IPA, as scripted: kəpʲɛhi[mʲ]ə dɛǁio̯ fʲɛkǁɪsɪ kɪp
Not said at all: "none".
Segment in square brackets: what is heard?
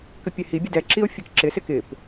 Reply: bʲ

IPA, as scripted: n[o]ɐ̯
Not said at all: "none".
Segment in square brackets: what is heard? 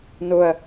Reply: o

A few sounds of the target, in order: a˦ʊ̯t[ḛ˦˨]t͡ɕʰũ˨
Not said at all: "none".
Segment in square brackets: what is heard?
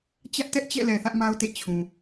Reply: ḛ˦˨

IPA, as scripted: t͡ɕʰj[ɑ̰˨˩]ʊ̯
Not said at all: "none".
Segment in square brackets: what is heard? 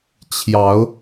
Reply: ɑ˨˦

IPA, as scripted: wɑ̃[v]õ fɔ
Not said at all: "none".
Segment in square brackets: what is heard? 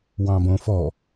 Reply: b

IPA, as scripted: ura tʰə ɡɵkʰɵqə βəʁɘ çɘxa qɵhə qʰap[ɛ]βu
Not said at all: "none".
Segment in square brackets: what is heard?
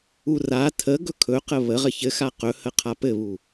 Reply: ɘ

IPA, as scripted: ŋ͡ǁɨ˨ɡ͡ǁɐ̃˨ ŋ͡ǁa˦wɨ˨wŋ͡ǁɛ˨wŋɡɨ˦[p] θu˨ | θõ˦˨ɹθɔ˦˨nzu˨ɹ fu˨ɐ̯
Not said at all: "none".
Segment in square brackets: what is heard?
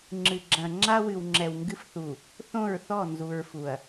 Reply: f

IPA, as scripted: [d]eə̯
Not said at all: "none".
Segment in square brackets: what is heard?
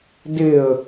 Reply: d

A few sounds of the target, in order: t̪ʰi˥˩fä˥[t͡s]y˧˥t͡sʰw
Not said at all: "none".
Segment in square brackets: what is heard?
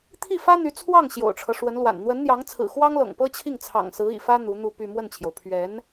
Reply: n̪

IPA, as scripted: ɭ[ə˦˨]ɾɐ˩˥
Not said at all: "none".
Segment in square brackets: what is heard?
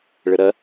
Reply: ə˨˩˦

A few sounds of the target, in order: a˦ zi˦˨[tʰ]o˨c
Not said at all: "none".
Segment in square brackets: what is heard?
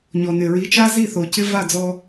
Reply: θ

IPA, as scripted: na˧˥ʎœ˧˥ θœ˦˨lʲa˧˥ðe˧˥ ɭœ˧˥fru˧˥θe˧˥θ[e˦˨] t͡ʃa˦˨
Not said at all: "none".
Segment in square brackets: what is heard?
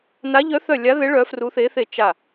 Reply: e˦˨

